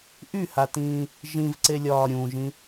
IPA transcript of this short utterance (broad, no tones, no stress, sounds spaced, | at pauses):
ʔ y h a t ĩː | ʒ ĩ v ǀ e lʲ ɒː ɾʲ ũ ʒ ĩ